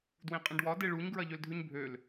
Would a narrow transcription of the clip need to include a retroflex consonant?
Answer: yes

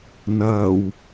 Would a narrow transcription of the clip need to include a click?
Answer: no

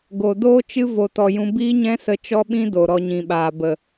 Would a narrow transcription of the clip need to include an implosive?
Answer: yes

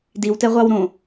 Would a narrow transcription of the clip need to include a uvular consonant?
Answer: yes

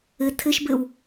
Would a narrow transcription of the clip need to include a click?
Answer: no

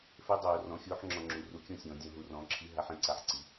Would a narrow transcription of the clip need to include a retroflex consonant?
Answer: no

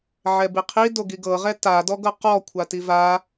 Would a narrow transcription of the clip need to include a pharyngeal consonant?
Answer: yes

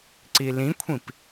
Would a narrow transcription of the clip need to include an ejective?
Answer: no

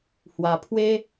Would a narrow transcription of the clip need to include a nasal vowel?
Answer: no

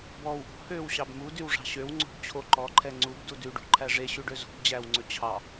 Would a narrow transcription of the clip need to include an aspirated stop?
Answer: yes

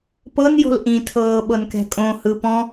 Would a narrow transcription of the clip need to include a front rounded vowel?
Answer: no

